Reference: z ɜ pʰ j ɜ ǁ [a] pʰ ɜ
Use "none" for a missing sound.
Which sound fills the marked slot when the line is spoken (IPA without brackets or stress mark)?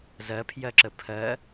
ə